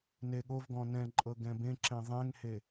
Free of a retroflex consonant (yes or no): yes